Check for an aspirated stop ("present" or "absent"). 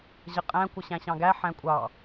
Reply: absent